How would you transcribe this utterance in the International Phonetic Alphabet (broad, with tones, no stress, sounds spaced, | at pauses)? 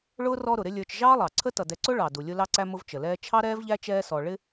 ɭ ʊː˥ r ɔ˦ ɾ ʊ˩ ɾ ɪ˦ lʲ ə˞˨ t͡ʃ ʒ ɑː˥ lˠ ɑ˩ ǀʰ ə˥ t ʌ˩ d ɛ˨ ǀ ʊ˥ ɭ ɑ˩ d u˩ lʲ ʊ˦ l ɑ˦ ǀ æ˦ m ʊ˦ v t͡ʃ ə˩ l ɛː˥ t͡ʃʰ ɑ˥ ɾ ɛː˥ v ʎ æ˥ t͡ʃ ɛː˦ s ɔ˨ ɭ ɪ˦